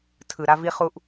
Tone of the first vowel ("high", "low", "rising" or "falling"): low